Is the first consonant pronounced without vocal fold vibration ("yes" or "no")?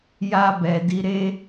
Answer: no